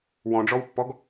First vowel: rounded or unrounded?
rounded